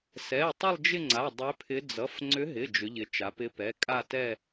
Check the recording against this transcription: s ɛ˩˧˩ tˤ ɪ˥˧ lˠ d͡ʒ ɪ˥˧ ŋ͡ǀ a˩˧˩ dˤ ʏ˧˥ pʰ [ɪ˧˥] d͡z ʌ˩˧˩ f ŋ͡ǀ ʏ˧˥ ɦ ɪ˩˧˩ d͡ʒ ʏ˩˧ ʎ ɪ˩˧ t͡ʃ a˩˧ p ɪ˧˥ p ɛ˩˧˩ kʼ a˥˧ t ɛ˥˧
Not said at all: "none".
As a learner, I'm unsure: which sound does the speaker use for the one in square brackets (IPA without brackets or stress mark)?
ɪ˧˥